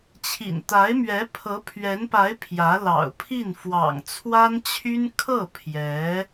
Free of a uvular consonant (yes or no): yes